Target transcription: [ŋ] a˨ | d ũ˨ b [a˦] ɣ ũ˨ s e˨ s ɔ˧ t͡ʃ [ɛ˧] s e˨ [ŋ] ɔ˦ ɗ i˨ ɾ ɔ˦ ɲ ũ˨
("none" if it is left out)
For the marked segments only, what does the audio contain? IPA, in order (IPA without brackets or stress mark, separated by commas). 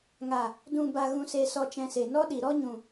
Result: ŋ, a˨, ɛ̃˧, n